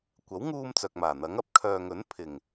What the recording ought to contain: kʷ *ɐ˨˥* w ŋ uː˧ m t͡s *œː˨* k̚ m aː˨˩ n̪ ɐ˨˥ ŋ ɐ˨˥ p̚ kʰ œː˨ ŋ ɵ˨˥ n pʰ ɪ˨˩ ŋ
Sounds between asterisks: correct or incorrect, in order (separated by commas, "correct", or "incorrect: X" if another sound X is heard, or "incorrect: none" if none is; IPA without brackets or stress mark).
correct, correct